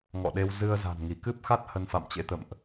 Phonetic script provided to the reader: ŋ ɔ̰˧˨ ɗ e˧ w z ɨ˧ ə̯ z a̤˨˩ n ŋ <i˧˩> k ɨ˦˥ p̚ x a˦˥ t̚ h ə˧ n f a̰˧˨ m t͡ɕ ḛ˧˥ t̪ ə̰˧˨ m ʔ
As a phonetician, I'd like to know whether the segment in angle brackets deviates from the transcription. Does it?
no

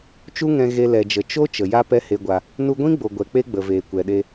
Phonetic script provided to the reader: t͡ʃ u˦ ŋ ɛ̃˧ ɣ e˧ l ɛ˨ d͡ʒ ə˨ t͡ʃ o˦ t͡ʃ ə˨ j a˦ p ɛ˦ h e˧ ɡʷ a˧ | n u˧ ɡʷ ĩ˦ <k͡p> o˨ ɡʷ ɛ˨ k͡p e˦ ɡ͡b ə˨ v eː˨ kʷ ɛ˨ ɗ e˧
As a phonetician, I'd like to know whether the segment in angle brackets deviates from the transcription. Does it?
yes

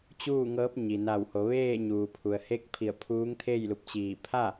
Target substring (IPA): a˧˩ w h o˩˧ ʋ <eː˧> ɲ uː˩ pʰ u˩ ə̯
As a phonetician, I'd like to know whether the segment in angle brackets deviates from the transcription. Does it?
yes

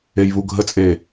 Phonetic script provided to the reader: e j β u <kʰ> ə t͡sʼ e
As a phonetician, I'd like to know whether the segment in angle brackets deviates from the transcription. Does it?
yes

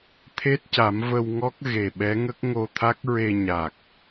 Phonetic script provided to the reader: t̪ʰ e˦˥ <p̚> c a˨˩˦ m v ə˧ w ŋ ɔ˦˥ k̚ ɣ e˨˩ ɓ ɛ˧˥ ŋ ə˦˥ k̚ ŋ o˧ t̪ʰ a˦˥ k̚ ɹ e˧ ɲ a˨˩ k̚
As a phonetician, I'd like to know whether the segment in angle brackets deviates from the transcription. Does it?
yes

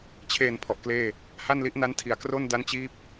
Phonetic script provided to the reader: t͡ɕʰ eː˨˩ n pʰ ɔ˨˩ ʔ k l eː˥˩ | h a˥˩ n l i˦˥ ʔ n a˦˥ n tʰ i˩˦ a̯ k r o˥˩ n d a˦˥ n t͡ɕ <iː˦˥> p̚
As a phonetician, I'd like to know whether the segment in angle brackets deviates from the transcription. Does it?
no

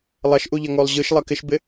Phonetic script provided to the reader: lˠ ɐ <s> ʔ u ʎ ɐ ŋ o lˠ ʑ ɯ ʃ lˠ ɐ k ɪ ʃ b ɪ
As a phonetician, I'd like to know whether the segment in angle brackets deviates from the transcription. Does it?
yes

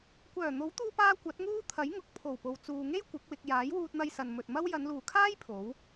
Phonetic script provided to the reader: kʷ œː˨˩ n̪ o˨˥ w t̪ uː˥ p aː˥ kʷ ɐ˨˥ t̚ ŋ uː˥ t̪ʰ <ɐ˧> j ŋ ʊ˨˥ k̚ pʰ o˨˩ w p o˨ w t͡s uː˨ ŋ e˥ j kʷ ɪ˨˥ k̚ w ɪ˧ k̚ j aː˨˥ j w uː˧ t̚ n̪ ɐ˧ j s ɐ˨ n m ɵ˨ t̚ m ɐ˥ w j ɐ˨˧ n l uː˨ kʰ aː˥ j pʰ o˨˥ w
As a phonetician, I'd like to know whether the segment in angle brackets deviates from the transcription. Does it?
yes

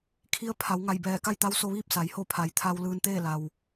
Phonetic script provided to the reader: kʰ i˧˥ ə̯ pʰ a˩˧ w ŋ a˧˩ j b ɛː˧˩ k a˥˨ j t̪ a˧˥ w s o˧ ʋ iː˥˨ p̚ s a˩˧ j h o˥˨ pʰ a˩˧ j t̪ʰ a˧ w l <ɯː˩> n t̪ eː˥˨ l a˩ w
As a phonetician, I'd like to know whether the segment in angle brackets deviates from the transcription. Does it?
yes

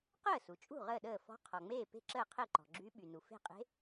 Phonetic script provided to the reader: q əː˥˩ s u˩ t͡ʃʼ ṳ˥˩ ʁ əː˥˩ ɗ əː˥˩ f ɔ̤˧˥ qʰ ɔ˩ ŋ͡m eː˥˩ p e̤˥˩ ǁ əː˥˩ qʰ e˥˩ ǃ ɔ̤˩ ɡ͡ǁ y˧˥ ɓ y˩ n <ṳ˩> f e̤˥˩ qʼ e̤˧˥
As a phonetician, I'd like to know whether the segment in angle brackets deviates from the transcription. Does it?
yes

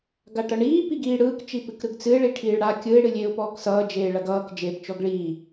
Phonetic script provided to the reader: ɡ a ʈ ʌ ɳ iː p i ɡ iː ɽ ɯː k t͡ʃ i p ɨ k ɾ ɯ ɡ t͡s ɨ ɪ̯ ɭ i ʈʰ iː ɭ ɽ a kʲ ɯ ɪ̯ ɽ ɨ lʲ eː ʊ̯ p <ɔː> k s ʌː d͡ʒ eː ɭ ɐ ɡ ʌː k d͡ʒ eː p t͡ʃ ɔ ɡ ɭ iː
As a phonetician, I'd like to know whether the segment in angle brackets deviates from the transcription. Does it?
no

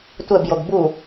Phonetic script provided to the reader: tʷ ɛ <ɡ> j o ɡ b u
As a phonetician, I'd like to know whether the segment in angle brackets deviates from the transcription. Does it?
yes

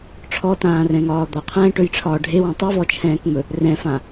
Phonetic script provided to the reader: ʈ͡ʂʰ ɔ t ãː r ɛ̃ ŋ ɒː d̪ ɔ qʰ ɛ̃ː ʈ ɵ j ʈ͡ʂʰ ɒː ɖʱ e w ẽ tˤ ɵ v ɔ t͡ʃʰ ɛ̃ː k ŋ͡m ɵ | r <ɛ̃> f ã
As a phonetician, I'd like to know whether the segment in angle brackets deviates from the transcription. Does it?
no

